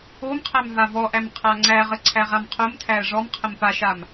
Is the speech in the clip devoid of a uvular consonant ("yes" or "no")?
no